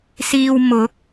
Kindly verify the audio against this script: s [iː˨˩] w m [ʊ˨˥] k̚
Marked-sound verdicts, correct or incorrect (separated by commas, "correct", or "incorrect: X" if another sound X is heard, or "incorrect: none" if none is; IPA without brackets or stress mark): incorrect: iː˧, correct